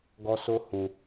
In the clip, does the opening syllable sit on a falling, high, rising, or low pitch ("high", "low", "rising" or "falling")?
high